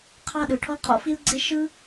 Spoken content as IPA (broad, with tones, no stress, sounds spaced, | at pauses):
qʰ ɑ˥ ɗ ɯ˩ ʈʰ ɔ˥ qʰ ɔ̰˥ f i˥ l ɡ͡ǀ e˥ ʃ ɯ˥